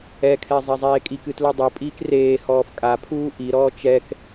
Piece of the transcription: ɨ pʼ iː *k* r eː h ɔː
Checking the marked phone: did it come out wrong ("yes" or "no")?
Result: no